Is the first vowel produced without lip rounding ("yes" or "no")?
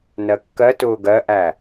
yes